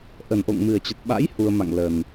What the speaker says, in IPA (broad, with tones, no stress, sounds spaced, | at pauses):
ʔ ə˨˩ n ʔ o̰˧˨ ŋ m ɨ˨˩ ə̯ t͡ɕ ə˨˩ t̚ ɓ a̰˧˥ j h u˧ ə̯ m a̰˧˨ ŋ l ə˨˩ n